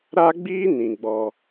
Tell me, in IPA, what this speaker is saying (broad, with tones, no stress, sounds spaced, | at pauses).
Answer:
ɾ a˦ ɡ͡b iː˦ n ĩ˨ ɡ͡b ɔ˦